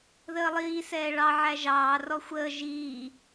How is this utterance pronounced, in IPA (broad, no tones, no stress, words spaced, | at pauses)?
ðəːlˠiː sɛːɭɑ ʕæʒɑː rɔxʷəː ʒiː